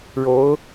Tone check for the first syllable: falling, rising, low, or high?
rising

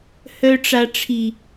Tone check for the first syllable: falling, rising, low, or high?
low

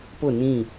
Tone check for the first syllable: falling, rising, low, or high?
falling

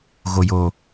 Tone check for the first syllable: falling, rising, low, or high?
low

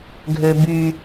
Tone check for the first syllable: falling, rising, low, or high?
low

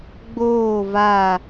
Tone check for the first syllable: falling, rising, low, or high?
falling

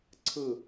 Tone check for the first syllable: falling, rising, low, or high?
falling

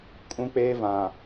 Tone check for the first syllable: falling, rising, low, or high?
high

